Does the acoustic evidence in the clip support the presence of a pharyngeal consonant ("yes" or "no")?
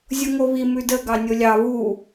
no